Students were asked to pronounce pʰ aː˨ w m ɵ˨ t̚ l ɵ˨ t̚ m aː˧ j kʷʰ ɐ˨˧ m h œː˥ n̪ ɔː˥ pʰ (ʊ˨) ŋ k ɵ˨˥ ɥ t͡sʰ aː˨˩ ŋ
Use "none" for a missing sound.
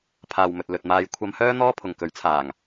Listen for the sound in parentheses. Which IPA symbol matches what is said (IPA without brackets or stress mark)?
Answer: ʊ˨